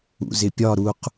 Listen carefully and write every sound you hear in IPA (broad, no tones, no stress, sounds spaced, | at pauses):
ṵ z ɪ pʲ ɒ ɾ u q